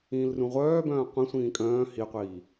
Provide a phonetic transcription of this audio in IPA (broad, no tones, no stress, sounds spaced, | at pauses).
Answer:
ĩː l r ũ ʁʷ œː b œ̃ː qʷ ĩ sʷ ĩː kʼ œ̃ː h i qʷ iː